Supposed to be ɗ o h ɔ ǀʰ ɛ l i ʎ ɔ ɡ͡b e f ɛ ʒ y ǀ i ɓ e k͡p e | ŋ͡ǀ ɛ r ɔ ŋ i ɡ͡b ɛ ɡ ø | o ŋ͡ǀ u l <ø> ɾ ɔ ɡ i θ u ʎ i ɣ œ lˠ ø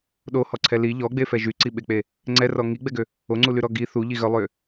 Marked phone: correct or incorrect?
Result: incorrect